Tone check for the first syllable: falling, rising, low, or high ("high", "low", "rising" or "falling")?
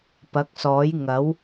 rising